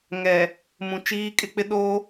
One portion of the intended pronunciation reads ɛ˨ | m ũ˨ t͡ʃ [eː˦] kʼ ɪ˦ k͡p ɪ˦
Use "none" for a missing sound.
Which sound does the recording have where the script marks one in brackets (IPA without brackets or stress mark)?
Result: iː˦